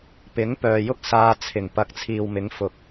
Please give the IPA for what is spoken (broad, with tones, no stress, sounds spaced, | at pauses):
p ɪ˨˥ ŋ p œː˨ j ʊ˥ k̚ s aː˧ t͡sʰ ɪ˨˩ ŋ p ɐ˨˥ k̚ t͡sʰ iː˨ w m ɪ˨˥ ŋ f ʊ˨ k̚